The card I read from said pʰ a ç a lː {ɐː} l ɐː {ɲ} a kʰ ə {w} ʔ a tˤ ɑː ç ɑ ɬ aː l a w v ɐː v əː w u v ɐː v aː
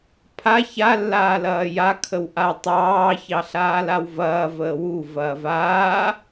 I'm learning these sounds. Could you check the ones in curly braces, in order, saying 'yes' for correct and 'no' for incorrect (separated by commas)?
no, no, yes